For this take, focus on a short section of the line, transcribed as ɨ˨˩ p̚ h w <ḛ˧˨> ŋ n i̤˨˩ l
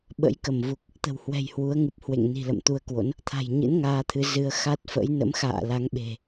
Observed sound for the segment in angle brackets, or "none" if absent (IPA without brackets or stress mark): ḛ˧˨